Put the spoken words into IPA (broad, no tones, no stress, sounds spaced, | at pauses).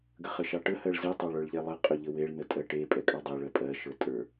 ɡ ə χ ə ʃ ɑ ʈ ə h ɜ ɭ z e tˤ ɑ ɭ ə˞ ɭ ʎ ɛ lˠ ə qʼ ɵ ʎ ə w e ɭ n ə tʼ ɜ ʈ e pʼ ɛ kʼ ɑ dˤ e ɭ ɜ pʼ ɜ ʃ ə˞ tʼ ə˞